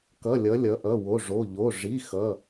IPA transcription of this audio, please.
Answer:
k ʌ˩˧˩ lʲ ʌ˩˧ lʲ ʌ˩˧ ʔ ʌ˩˧˩ w o˩˧˩ ʐ o˩˧˩ ʎ o˩˧˩ ʐ i˩˧˩ x ʌ˩˧˩

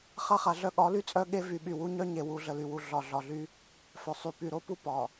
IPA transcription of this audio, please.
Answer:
χ a˦ χ a˨ ɮ œ˦ ɠ ɒ˨˦ l y˦ t͡sʼ œ˦ ɠ e˦ v y˨ ɓ y˨ w u˦ ɲ œ˦ ɲ e˨ w u˨ ɮ ə˨ l y˨ w u˨ ɮ ɒ˨ ɮ ɒ˨ ɮ y˦ | f œ˨ sˤ y˨ p y˨ ɾ o˦ p u˦ p ɒ˨

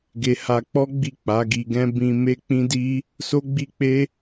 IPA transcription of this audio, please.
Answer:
ɡ e˧ h a˧ k͡p ɔ˦ ɡ͡b i˦˨ k͡p a˨˦ ɡ i˧ ɡ ɛ̃˦ b ĩ˧ m e˦ k͡p ĩ˦ d i˦ | s o˦ ɡ͡b i˦ k͡p e˦

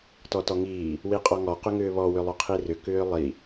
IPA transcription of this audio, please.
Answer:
t ɔ t ɔ ŋ iː | w i qʼ ɔ ŋ ɔ q ʏ ŋ ʏː β ɔ w ʏ lˠ ʊ qʰ i r ʏ k ʏː lˠ i

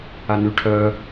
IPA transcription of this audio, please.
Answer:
a n y ʈʰ œ

